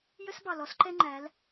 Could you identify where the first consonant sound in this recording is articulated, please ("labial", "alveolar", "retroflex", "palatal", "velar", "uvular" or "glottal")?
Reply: palatal